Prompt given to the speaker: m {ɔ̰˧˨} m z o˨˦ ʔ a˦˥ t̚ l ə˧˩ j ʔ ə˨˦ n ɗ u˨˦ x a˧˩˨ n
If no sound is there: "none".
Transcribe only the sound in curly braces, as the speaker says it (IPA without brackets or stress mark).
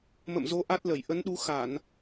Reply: ə̰˧˨